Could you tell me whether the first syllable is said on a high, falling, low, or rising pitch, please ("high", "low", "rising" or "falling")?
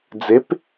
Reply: rising